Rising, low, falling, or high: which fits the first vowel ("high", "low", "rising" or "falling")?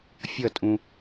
falling